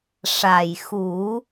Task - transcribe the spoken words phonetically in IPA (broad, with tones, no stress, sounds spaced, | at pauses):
ʂ a˨˩ j x u˨˩˦